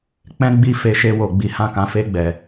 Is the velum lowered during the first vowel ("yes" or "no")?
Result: yes